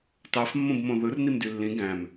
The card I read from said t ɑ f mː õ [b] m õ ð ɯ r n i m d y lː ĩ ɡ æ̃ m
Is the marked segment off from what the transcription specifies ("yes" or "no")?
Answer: no